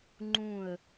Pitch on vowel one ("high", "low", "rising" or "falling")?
falling